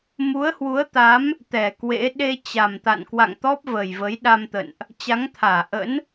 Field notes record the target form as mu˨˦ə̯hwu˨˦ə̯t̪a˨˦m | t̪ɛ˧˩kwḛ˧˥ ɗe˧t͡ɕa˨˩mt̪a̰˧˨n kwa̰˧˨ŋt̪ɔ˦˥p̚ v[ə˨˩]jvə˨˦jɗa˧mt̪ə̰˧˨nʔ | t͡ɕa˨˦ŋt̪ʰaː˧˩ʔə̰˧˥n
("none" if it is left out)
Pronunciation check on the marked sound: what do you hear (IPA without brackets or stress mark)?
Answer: ə˨˩